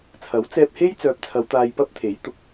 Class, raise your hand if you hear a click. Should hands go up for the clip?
no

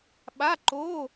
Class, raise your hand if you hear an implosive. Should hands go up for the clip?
yes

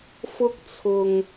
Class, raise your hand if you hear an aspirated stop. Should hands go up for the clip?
yes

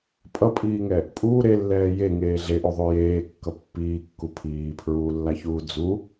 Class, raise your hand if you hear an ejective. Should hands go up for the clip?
yes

